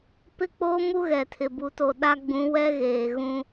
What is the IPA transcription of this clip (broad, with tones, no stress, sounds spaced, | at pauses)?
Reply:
p ɪ˦ k͡p o˦ m u˦ ɣ ɛ˨ tʰ ɪ˨ b u˦ t o˦ ɗ a˦ ɡ͡b ũ˨˦ w ɛ˦ ɣ eː˨ ɣ ũ˦